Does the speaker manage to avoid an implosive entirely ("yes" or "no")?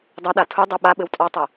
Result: no